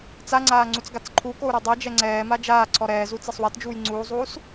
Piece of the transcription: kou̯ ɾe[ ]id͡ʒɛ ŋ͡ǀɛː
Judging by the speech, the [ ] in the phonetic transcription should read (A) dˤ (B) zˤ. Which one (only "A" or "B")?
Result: A